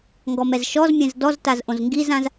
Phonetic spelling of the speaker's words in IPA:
ŋ ɡ ɔ m ɛ z ʃ ɔ z mʲ ɛ̃ z d ɔ z t a z ʔ õ z ŋ ɡ i z ã z

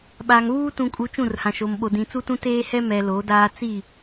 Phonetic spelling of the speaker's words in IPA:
ɓ aː˨ ŋ β uː˦ t ũ˨ kʼ u˨ t͡ʃ ũ˦˨ r h ã˨ ʃ o˨ m ɓ o˨ d ĩ˨ t͡s u˦ t ũ˦ t eː˦ h ɛ˦ m ɛ˨ l o˨˦ d aː˦ t͡s i˦˨

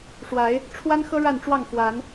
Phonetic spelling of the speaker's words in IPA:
ʂ w a˨˦ ɪ̯ | ʈ͡ʂʰ w a˦ n x ɤ˦ ɻ a˥˨ n ʈ͡ʂ w ɑ˥˨ ŋ f w a˨˦ n

